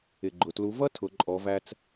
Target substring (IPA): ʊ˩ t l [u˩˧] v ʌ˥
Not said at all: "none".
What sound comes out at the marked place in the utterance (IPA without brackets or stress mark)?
u˩˧